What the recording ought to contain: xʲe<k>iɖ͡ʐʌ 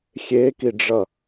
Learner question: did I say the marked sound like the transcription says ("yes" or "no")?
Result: yes